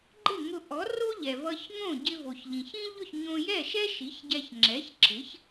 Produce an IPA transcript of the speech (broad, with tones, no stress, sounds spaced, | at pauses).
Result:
ɡ͡ǃ ɪ˥˩ ŋ ʊ˧ ʔ ɔ˩˥ r o˥ ʎ ɛ˩ v ʌ˧ ç ŋ õ˥˩ ɟ ɪ˧ v o˩ ç ʎ ĩ˩ ç ĩ˥ ʎ ʊ˥˩ ç ɲ õ˧ j ɛ˥˩ ʃ ɛ˥ ʃ i˩˥ ç ɟ ɛ˧ ç ŋ͡ǁ ɛ˩˥ ç ǁʰ ɪ˩˥ ç